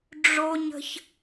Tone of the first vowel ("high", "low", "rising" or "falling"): high